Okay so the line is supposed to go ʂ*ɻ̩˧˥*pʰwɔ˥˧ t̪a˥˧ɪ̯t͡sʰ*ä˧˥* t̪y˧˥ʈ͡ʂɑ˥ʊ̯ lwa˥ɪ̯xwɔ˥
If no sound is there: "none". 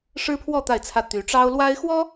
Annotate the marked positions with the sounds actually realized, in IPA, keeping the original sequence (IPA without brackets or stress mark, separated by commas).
ɻ̩˥, ä˥˩